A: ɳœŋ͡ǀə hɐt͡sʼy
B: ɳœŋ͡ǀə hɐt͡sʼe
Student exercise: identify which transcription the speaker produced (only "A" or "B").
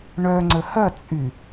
A